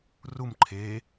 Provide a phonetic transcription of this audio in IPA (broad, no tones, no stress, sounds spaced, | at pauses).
r u m ǃʰ e